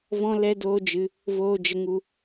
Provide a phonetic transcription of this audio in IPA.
vɔ̃˦lɛ˦doː˦d͡ʒɨ˧ | voː˧d͡ʒə˧ŋu˧

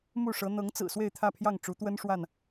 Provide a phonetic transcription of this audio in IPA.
mu˥˨ʂɤ˨˦ n̪ɤ˨˦ŋt͡sɹ̩˨˩ swe˥˨ɪ̯t̪ʰä˥˨pʰjɑ˥˨ŋ ʈ͡ʂu˨˦t̪wə˦nʂwa˥˨n

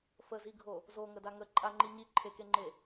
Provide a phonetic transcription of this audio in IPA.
fəziɡʱo | zoŋəda ŋə ǃʼaŋ͡ǃi ɲiǃʰekeŋ͡ǃe

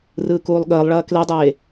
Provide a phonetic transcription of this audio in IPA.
rɯːkuːlˠɠəːlˠɭɐː kledˤeː

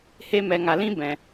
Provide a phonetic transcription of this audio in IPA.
he˧mɛ˨ ŋa˨lĩ˦ bɛ̃˨

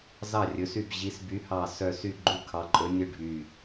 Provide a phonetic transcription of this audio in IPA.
zɑ˥˩ rʲɵ˨˦sy˥˩b ʑi˨˦sby˨˦hɑ˧˩sœ˧˩ sy˥˩ɡ͡ǃu˥˩kʰɑ˨˦ǃʼɵ˨˦ nʲɵ˥˩ɖʱy˧˩

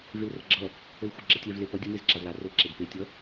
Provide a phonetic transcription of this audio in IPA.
velrʌɡ͡ǁʌ | əlxʷaɡ͡ǁʌtʲɛv lepʌ dʲə mezǁavla rəlǁeɡpe tʲʌ

